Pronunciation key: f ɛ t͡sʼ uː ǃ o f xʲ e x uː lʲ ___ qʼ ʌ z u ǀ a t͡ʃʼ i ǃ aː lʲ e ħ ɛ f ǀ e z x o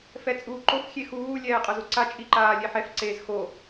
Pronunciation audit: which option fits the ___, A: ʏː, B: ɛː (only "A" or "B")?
B